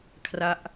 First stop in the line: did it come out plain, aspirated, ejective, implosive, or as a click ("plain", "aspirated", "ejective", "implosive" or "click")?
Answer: aspirated